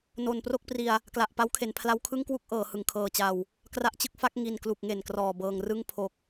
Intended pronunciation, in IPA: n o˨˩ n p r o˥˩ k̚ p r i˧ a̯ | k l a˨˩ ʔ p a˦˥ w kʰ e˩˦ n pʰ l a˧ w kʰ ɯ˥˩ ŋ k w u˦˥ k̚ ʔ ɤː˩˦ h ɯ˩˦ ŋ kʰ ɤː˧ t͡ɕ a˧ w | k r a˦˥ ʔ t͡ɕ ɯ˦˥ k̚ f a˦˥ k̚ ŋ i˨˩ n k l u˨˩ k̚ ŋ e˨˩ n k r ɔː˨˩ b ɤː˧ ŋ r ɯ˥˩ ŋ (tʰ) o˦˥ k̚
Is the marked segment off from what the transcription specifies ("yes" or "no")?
yes